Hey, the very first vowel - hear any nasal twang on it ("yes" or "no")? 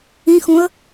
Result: yes